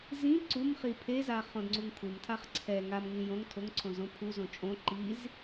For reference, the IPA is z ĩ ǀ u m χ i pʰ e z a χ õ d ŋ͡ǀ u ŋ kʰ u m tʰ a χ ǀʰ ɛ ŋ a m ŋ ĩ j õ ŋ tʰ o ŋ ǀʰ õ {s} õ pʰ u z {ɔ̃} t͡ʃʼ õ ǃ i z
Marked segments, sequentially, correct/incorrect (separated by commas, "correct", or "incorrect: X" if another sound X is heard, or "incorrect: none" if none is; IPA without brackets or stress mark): incorrect: z, incorrect: õ